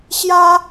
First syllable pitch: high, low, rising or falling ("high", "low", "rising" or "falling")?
high